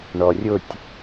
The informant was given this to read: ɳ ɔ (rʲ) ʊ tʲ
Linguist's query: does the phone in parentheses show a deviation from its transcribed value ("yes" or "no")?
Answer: no